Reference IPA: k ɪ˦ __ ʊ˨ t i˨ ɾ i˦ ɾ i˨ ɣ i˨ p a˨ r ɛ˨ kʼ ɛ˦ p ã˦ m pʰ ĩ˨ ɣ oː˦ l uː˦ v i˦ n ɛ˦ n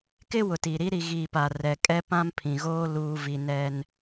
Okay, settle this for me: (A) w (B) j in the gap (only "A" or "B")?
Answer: A